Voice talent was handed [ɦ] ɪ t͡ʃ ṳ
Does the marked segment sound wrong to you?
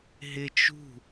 no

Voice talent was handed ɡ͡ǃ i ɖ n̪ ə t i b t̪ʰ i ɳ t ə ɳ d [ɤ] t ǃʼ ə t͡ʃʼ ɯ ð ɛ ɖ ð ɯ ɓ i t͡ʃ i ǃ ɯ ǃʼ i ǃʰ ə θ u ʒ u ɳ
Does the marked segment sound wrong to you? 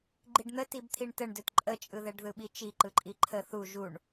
yes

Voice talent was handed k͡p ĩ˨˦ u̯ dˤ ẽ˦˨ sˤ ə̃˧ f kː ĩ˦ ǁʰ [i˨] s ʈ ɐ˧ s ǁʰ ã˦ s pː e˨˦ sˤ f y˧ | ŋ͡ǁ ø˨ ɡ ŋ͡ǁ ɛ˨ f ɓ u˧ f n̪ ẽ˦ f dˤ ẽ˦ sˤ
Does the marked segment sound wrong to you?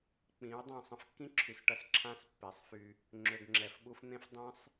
yes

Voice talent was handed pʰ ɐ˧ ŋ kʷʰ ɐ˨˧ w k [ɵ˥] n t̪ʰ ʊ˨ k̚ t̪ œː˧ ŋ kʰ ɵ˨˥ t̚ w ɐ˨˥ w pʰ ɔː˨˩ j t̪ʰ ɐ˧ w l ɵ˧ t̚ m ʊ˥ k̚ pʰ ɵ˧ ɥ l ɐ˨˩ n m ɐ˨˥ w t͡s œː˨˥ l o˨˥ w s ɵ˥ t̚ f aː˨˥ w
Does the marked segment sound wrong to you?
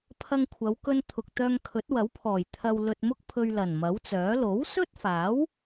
yes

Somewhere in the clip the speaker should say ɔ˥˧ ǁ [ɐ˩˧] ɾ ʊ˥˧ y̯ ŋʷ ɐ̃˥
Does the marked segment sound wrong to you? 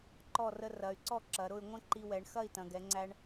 no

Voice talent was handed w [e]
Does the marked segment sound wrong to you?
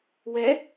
yes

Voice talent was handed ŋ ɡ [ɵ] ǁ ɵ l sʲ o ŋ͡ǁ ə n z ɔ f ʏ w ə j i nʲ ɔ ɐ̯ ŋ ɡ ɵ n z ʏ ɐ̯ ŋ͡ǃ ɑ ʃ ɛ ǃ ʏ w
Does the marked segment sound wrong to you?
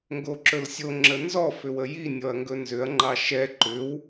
yes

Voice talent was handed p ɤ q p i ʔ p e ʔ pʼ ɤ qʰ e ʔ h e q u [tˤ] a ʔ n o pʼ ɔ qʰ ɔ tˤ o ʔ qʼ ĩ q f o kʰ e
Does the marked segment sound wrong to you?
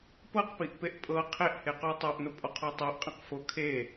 no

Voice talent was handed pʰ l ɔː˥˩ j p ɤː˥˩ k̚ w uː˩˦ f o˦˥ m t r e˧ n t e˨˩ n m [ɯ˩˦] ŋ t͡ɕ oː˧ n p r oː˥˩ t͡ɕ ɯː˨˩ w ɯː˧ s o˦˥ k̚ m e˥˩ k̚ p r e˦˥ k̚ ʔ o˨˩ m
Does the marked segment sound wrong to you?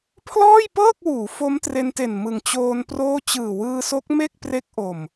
no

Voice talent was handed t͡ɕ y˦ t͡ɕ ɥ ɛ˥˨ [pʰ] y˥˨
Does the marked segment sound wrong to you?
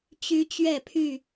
no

